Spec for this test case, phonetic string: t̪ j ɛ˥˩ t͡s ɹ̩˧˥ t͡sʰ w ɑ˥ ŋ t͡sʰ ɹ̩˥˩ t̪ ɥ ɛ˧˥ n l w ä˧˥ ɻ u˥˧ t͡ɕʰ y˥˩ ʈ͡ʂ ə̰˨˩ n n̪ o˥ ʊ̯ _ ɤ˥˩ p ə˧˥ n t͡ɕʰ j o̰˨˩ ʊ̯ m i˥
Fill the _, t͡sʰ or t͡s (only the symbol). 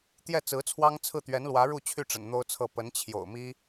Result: t͡sʰ